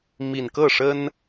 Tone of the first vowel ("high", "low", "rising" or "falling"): low